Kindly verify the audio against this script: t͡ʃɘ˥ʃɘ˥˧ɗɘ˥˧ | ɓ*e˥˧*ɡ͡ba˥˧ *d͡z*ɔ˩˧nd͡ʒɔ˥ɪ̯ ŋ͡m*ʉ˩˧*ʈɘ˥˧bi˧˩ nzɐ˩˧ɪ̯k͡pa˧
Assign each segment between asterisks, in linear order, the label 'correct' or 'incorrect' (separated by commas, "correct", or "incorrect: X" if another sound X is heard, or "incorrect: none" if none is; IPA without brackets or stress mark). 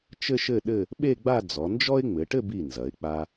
correct, correct, incorrect: ɘ˩˧